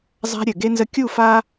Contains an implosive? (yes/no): no